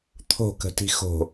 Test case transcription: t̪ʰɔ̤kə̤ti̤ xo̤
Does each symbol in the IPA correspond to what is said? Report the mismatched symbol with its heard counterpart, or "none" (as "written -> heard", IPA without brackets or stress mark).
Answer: ɔ̤ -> o̤